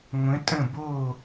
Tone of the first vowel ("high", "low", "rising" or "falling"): rising